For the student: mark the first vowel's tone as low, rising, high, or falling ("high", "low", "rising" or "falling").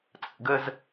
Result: low